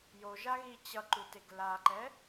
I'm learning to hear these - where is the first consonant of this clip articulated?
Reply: palate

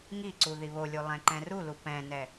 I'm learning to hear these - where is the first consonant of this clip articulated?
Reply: velum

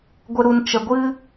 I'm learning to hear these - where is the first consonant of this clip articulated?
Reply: velum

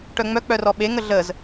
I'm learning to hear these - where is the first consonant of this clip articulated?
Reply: retroflex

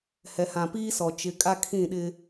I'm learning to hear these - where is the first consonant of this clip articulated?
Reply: throat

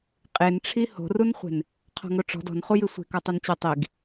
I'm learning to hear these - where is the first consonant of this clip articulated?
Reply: uvula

